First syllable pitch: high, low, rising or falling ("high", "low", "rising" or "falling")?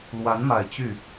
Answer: rising